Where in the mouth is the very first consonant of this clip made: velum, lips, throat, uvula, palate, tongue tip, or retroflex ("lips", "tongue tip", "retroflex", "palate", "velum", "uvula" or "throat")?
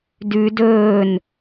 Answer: tongue tip